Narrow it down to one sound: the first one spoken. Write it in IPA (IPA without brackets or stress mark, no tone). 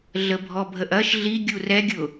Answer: ɮ